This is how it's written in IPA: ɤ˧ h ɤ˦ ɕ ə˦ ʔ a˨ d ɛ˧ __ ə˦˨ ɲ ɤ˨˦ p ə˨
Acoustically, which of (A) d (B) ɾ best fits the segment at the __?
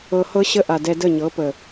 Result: A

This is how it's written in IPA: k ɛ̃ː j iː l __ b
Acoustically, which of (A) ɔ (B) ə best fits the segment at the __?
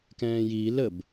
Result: B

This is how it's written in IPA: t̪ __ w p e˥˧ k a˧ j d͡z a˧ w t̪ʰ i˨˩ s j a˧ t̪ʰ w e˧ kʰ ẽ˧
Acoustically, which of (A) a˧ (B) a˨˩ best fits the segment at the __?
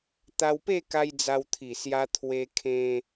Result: A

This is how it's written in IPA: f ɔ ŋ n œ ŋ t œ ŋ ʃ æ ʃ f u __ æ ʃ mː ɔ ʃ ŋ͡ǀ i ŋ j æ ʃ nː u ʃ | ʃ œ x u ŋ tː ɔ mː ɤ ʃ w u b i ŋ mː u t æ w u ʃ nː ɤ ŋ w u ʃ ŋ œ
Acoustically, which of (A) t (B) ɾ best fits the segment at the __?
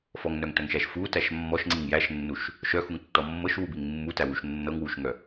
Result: A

